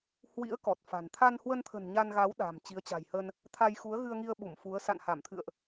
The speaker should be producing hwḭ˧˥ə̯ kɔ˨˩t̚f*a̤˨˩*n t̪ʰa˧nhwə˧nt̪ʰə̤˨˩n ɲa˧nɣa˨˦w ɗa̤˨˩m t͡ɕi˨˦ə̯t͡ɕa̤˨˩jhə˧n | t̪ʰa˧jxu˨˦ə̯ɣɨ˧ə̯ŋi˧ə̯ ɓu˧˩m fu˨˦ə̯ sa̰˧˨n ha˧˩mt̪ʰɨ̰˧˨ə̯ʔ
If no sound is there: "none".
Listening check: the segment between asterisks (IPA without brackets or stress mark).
a̤˨˩